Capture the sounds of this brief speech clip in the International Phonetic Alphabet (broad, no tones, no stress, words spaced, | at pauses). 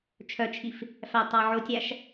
t͡ʃʰœt͡ʃʰif | fætˤɑ ʕotʲæʃ